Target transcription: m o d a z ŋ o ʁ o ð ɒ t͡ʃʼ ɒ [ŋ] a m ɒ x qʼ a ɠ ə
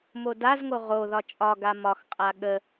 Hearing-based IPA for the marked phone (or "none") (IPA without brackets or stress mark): ɡ